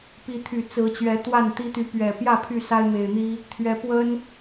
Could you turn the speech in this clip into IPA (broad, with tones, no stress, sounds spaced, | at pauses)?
p i˨˦ t̪ʰ y˨˩ t͡s ɹ̩˨˦ t͡ɕ ɥ ɛ˨˦ t̪ w a˥˨ n t̪ i˦ t̪ y˨˦ p ɥ ɛ˨˩ p j ä˥˨ pʰ y˥˨ s a˦ ɪ̯ m e˨˩ ɪ̯ n̪ i˦ | t̪ʰ ɥ ɛ˨˦ p w ə˦ n